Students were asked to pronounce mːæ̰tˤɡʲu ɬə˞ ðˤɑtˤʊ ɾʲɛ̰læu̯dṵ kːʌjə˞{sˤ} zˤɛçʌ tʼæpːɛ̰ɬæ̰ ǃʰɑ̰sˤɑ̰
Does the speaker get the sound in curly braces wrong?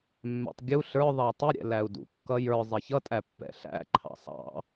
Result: yes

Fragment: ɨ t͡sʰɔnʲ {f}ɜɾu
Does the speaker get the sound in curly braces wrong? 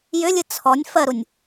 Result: no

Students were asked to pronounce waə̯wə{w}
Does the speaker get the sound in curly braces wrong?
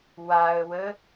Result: yes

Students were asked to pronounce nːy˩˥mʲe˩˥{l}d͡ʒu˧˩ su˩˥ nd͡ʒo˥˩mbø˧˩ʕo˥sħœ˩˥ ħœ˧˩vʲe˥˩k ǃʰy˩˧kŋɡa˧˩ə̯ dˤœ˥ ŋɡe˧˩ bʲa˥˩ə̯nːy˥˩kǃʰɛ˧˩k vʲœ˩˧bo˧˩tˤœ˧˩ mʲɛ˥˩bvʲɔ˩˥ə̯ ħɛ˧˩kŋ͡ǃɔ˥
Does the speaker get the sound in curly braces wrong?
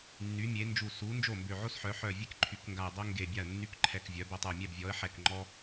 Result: yes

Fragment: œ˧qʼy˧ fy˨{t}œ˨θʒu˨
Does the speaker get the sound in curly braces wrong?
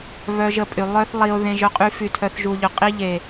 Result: yes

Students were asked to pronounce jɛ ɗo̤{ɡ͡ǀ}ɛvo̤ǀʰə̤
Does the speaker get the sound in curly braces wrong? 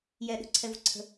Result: yes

